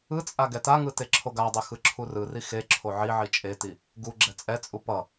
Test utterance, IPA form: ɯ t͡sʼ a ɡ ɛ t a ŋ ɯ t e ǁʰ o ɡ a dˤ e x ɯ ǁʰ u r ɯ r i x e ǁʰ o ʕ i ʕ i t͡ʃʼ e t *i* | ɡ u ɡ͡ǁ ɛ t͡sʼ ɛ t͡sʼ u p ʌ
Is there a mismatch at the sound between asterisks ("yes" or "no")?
no